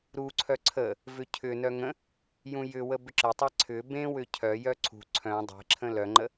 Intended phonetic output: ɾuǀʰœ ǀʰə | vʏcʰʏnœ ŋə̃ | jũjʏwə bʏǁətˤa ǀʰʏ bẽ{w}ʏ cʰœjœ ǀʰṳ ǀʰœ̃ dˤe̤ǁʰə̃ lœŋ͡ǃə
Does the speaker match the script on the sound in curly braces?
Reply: yes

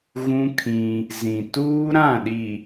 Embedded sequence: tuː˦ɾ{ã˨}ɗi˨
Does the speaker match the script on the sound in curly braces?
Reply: no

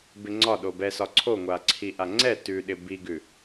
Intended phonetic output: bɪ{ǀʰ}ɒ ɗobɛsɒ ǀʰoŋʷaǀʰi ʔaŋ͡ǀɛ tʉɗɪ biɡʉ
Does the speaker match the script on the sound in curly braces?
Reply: no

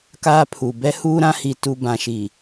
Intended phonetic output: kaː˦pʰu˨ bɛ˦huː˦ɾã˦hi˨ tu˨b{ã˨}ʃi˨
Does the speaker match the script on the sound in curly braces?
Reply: yes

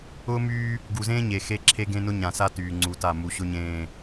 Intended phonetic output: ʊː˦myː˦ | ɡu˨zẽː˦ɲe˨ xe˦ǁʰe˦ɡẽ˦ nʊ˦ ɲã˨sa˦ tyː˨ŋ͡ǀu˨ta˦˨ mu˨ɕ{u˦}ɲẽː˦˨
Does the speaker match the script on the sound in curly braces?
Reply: no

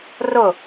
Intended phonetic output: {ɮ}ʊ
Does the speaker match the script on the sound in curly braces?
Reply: no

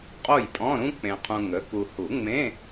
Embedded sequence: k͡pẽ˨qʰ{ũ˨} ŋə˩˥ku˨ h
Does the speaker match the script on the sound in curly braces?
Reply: yes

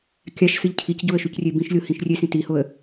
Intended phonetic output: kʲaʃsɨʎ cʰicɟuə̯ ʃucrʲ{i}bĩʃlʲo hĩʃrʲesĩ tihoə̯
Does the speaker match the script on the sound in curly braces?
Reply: no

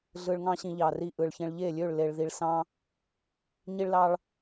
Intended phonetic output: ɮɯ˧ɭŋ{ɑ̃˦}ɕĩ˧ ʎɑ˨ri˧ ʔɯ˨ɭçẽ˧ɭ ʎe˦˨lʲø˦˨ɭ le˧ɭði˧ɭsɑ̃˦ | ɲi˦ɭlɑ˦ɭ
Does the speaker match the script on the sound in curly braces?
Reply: yes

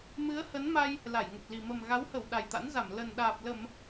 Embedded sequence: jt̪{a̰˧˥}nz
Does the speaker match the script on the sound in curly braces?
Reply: yes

